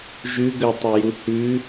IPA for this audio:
ʒ ʉ ɡ ə tˤ ʉ j u h ʉ

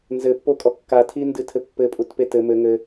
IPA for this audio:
n z ɘ pː o kʼ ɔ kː a tʰ i n d ɨ tʰ ɘ pː ɘ pʼ u t p e t ɘ m ɘ ŋ ɘ

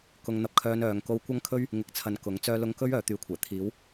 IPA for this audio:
k ʊ˨˧ ŋ n̪ ɐ˧ p̚ kʰ œː˧ n œː˨ ŋ k o˧ w kʷ ɐ˥ ŋ kʰ ɵ˥ ɥ | ŋ ɪ˨ k̚ t͡sʰ ɐ˨ n k ʊ˨˥ ŋ t͡s œː˧ l ʊ˧ ŋ k ɵ˥ ɥ œː˨˧ t̪ yː˨˧ kʷʰ ɛː˨˩ t̪ʰ iː˨˥ w

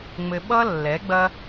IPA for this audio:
ŋ͡m ɘ˧ ɓ ʌ˦ lː ɛ˨˦ ɡ͡b ɐ˦

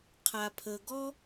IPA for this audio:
qʰ a˨ pʰ ə˨ ɡ ɔ˦

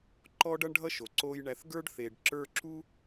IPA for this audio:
ǃ ɔ˥ ɖ ʌ˥ ɳ ɖʱ ʌ˥ ʃ o˩ ǀ o˨ j ɳ æ˨ θ ɡ ə˞˥ ɖ θ e˩ ɖ ǁ ə˞˦ ǁ u˥

